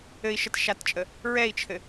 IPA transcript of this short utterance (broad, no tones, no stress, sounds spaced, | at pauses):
ɘ i̯ ʃ ə t ʃ a t t͡ʃʼ ə | ɹ ɛ i̯ t͡ʃʰ ɘ